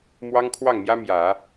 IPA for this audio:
mwɑ˥ŋkʰwɑ˥˩ŋmjä˥mjä˨˩˦

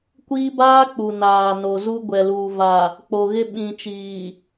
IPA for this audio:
kʷiː˦baː˦ k͡pu˨naː˨ no˨zu˦ ɡʷɛ˨luː˨ va˨ | k͡po˨ɣɪ˦ ɓĩ˨t͡ʃiː˨

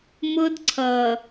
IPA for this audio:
mʊ˦dǀʰʌ˨

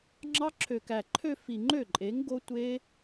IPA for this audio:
ŋ͡ǁɑ˦˥ǁʰø˨˩kæ˨˩ ǃʰø˥˧fi˨˩ ŋ͡ǃø˥˩ǃʼe˩˥ŋ ɡo˦˥tʷe˦˥

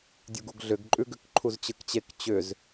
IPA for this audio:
dʲuɡuɡɮʏɡ ǃʼʉɡʏk ǃʰuzt͡ɕɯkt͡ɕek t͡ɕʏz

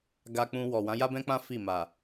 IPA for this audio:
ɡa˧k͡pũ˧wɔ˨ wã˨˦ja˦bɛ̃˦k͡pã˦ fi˦˨ma˨

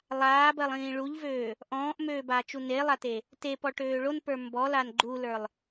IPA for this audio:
lˠaːbɜlˠĩː ɭuʎvøː | ʔɔ̃ːʔmøːbaːt͡ʃu nelˠate | tepɔʈøː ɭonpə˞ mbɔlan ɡ͡ǃulə˞lˠ

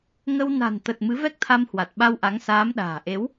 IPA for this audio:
ŋə˧w na̤˨˩nt̪ə˨˩t̚ mɨ˨˦vɛ˦˥k̚t̪ʰa˧mhwa˨˩t̚ ɓa˧wʔa˨˦ŋsaː˨˦mɗa̤ː˨˩ ʔe˨˦w

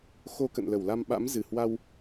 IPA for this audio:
xo˧kə̰˧˨nlə˧˩wla˧m ɓa̰˧˥mzɨ˧˩hwa˧w

